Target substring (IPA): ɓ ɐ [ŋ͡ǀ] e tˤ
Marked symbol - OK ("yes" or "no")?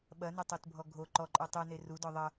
no